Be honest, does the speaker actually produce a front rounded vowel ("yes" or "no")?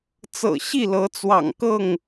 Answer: no